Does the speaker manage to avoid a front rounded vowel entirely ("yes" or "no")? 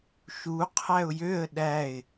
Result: no